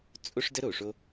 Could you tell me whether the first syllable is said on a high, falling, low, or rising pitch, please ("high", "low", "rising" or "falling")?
high